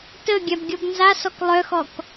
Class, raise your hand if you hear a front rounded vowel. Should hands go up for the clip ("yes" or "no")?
yes